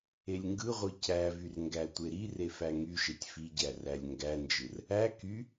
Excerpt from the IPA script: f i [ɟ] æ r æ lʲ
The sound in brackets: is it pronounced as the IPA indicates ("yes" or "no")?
yes